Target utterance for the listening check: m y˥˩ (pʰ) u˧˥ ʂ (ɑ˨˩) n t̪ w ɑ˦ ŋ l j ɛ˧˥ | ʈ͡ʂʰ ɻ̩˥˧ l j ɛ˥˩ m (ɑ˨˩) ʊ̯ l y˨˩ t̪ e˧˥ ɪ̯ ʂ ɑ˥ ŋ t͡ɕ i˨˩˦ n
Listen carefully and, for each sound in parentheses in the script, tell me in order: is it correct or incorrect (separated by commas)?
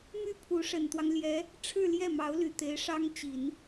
correct, incorrect, incorrect